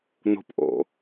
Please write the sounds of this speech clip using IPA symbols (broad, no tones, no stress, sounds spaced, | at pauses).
n̪ o̤ p ʔ o̰